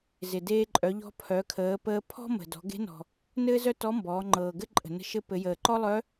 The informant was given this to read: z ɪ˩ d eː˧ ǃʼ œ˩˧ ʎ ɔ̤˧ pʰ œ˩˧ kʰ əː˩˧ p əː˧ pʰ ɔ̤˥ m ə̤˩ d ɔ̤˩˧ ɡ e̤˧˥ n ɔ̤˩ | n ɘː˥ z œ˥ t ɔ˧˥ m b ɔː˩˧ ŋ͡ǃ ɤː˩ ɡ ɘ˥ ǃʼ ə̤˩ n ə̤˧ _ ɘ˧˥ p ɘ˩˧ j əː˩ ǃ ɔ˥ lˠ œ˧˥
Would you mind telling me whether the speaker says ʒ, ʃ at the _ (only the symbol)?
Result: ʃ